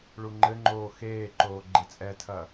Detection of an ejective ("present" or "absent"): present